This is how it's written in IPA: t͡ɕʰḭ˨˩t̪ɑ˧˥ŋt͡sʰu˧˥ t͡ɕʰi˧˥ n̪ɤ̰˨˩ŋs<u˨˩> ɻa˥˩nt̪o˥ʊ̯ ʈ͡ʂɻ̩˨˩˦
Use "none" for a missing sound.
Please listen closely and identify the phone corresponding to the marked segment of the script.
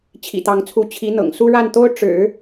u˥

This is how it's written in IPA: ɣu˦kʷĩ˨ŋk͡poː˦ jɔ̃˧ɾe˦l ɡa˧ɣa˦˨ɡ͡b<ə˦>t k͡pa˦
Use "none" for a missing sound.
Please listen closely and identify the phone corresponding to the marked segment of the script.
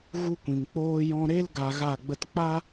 ə˦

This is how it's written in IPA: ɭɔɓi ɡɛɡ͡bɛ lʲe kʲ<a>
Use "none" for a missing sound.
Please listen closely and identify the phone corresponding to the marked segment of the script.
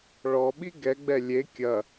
ɐ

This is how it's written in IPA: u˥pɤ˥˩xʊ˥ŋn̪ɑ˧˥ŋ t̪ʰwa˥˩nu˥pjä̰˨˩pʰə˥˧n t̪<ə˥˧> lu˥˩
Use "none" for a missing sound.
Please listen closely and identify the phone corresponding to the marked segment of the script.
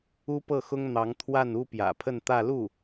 ä˥˧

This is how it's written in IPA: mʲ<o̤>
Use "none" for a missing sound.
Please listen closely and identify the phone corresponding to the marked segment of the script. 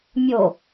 o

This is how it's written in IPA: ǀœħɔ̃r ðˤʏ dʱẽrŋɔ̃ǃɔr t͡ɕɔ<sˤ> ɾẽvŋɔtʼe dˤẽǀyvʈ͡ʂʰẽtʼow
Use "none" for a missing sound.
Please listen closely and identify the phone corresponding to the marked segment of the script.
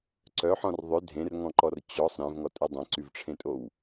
sˤ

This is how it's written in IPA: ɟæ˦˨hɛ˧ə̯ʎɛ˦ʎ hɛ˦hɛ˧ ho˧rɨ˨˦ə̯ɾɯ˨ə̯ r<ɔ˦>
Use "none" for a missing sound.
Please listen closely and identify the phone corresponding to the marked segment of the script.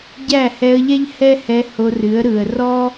ɔ˦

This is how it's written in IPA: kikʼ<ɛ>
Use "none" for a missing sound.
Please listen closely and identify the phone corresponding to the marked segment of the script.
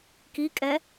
ɛ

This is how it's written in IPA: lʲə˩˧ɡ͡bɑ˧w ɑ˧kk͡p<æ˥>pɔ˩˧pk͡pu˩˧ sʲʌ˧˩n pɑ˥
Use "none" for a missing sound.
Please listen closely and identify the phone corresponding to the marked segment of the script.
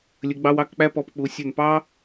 æ˥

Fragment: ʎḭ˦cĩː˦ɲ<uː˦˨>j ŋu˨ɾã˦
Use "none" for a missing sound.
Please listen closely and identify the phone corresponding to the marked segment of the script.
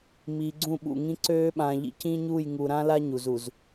uː˦˨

